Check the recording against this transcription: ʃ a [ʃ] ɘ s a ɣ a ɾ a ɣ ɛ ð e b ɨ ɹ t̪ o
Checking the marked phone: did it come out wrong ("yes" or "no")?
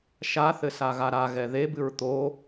yes